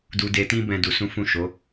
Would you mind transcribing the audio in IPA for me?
du˧de˧tĩ˦ bɛ̃˦du˧sũ˦ fũ˦˨ʃo˨˦

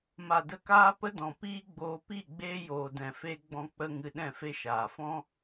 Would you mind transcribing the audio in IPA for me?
ma˨də˧kaː˦ pə˦dɔ̃˨piː˦ɡ͡boː˧ pi˦˨ ɡ͡beː˦joː˨dɛ̃˨fe˦ ɡ͡bɔ̃˧k͡pə˧ ŋɨ˧ɗɛ̃˦˨fe˦ʃaː˨ fɔ̃˦

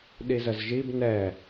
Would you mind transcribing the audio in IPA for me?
ɗizəzʒib nɛ

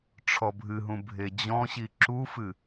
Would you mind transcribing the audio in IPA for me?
ʈ͡ʂʰɔbʱɨɦũ bʱed͡ʑɔ̃ɕi ǁufɨ

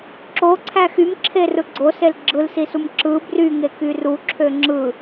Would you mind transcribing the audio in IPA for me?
ǁoǀʰæ xymǁʰerɯ ɡ͡ǀosel ɡ͡ǁɯlsisum ǁɯ bryŋeky ruǁʰø ŋ͡ǁɯ

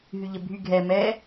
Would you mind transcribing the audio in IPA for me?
ɦyʎəbʱy ɡʱɛ mɛ

